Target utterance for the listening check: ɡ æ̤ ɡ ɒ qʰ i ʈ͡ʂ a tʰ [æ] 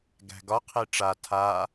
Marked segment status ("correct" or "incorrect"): incorrect